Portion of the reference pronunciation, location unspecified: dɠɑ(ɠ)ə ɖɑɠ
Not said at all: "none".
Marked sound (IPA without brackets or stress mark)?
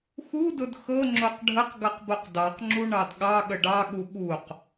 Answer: ɠ